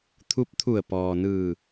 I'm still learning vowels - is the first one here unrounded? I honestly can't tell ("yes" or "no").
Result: no